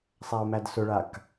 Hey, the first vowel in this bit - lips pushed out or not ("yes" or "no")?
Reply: no